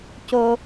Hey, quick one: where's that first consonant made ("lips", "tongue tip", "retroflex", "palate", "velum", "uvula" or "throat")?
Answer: palate